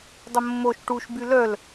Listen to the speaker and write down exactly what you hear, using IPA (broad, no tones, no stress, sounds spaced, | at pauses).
dˤ ə mː o ʃ ʈ u ʃ b y l œ l